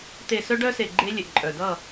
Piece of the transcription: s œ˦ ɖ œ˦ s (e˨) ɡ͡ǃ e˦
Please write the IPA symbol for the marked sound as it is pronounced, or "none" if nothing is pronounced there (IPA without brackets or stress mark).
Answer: e˨